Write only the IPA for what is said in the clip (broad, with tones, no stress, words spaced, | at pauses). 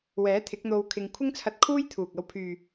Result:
wɛː˨˥t̪ʰɪ˨˥k̚n̪o˧w kʰɪ˧ŋ kʷʰɪ˥ŋt͡sʰɐ˧t̚kʰuː˥j t̪ʰuː˨k̚ɐ˧w pʰyː˨